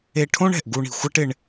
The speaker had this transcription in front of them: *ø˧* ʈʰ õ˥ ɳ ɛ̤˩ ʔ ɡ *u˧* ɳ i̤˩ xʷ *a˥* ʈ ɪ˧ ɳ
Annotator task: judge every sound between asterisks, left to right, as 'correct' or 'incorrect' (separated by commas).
incorrect, correct, correct